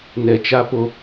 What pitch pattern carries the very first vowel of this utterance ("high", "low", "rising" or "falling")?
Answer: low